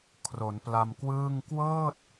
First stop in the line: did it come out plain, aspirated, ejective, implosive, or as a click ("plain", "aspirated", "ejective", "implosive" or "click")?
aspirated